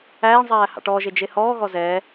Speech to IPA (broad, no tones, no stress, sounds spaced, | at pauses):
æː ɳ zˤ æː h ɑ̰ ʈ ɔː ʒ e d͡ʒ e h ɔː ɣ ɔ z ɛ